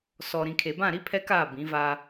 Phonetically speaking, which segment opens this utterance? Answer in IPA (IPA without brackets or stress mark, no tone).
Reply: s